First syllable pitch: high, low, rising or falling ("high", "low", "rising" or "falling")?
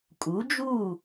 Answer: rising